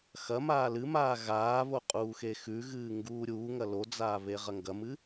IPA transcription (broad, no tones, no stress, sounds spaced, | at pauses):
x ɐ m aː l ɨ m aː ɣ aː β o qʼ uː x e x ʉ ɣ ɨː ŋ ɡ uː ɾʲ uː ŋ ɐ l o d͡z aː β e ʁ ɐ ŋ ɡ ɐ m ɨ